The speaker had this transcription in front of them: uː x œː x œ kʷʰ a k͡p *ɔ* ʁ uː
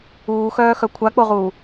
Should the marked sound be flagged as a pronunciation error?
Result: yes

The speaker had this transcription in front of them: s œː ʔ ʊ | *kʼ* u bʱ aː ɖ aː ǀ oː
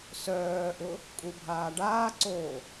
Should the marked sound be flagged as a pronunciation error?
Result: no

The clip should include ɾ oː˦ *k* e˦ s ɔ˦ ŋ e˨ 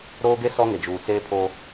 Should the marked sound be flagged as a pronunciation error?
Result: yes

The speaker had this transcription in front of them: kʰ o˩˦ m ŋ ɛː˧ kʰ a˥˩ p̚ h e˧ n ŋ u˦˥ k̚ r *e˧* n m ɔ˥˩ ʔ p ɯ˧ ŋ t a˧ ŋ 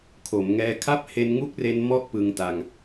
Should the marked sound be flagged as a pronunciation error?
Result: no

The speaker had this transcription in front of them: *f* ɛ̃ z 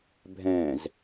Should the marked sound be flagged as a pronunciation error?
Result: yes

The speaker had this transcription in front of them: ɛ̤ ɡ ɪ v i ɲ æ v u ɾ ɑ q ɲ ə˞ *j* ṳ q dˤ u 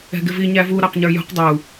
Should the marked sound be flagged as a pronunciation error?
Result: no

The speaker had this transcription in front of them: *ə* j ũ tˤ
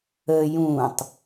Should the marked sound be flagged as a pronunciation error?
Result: no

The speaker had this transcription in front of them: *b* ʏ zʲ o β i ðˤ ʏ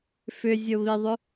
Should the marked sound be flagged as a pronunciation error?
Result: yes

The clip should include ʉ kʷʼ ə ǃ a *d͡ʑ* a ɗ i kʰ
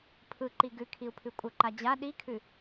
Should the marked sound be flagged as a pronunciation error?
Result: no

